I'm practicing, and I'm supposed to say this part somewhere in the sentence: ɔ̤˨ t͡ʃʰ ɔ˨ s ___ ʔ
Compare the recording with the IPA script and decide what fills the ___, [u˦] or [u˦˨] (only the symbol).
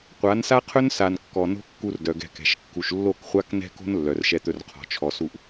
u˦